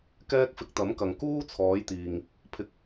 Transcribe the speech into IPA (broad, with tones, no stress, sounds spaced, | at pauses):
k ɛː˥ k̚ f ɪ˧ k̚ t̪ ɐ˨˥ m k ɐ˨ ŋ k uː˥ t͡sʰ ɔː˨˧ j t̪ iː˨ ŋ | pʰ ɪ˧ k̚